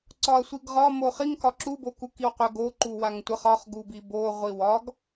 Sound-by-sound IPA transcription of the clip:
ǀɒɐ̯sʷiɡʁɒ moχiŋ kɒǁu bokukiwqʷə ɡo ǃuwaŋtʷəχ ɒχ ɡubibo ʁʷiwɒɡ

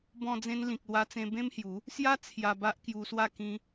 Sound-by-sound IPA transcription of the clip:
bɔ̃˧d͡zẽ˧nlĩ˨k̚ lwa˧t͡sẽ˧ bẽ˦mhju˨˦ | sja˦ t͡sʰja˧ba˦ʔkju˧swa˥˧ kĩ˧

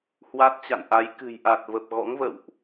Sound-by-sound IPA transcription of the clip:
hwa˦˥t̚t͡ɕa̰˧˨nʔa˨˦j kɨ̤˨˩j ʔa˨˩t̚və˨˩p̚ ɣɔ̰˧˥ŋvə̰˧˨wʔ

